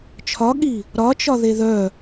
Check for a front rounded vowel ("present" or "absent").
present